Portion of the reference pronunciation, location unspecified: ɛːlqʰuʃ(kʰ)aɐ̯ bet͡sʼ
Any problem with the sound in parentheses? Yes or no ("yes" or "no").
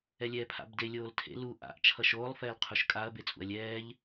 yes